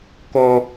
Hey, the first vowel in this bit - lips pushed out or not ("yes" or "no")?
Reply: yes